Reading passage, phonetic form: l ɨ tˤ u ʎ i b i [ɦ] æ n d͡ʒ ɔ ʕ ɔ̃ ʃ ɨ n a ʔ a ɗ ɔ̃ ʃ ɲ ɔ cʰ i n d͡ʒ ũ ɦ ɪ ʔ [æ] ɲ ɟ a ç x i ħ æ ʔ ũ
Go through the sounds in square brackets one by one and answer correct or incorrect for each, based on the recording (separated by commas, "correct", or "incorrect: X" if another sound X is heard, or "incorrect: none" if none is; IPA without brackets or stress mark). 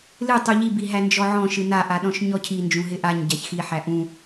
correct, incorrect: a